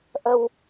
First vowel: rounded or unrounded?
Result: unrounded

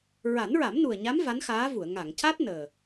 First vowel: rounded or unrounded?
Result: unrounded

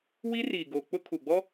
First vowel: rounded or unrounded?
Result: unrounded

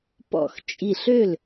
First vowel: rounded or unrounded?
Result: rounded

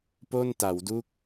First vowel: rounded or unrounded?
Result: rounded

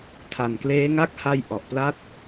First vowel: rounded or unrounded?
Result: unrounded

